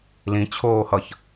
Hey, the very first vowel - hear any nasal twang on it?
yes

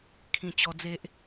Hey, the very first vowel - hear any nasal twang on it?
yes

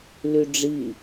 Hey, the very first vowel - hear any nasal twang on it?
no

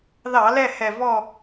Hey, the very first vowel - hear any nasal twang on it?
no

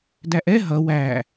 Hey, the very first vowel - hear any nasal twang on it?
no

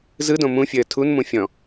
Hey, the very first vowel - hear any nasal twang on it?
no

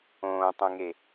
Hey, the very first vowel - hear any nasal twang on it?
yes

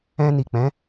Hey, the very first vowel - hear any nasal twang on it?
yes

